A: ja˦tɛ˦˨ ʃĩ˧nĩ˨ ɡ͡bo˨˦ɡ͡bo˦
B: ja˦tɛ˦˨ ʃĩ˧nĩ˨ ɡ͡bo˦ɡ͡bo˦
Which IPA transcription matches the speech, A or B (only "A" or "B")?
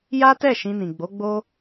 A